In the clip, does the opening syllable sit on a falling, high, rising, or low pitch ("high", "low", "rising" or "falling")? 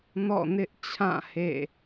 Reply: falling